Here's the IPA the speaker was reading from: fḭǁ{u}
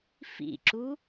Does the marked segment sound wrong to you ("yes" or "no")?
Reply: no